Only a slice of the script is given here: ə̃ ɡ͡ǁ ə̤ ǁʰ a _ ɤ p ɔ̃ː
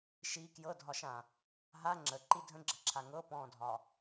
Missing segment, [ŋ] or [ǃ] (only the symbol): ŋ